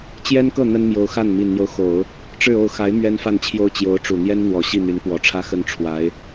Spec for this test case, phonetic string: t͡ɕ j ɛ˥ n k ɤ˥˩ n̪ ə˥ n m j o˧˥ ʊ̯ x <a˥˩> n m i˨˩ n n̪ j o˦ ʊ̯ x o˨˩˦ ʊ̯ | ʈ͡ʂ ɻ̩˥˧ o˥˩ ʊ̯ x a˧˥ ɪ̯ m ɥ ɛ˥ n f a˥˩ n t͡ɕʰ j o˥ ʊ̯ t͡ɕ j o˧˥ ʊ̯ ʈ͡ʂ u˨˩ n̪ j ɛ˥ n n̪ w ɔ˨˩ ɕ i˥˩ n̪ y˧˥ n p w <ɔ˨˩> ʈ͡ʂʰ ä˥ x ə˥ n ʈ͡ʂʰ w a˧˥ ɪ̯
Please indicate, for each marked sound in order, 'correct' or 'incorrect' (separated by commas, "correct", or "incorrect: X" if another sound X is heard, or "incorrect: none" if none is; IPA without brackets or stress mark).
correct, correct